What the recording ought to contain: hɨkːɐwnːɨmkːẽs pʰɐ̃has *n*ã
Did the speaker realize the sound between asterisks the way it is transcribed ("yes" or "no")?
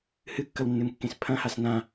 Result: yes